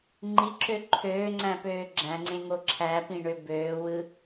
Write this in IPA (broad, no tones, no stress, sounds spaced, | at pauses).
ŋ͡ǃ i ǁ ø ǃʰ øː ŋ͡ǀ æ̃ p øː ɡ͡ǁ æ̃ ŋ͡ǀ ẽ ŋ o ǁʰ æ p ĩ ɳ ø b øː w ɯ